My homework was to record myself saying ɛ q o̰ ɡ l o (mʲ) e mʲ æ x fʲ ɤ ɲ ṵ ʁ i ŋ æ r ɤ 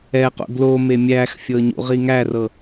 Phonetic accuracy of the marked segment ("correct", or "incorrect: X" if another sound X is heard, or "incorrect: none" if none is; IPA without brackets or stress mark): incorrect: m